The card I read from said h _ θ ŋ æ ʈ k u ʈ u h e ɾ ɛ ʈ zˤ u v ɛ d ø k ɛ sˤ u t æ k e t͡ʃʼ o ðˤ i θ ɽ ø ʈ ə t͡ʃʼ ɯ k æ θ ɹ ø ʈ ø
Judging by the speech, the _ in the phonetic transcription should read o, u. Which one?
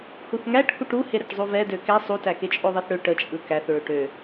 u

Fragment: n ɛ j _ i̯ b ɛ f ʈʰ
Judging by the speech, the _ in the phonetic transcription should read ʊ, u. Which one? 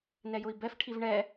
ʊ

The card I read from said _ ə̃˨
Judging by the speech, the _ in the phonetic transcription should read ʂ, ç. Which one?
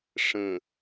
ʂ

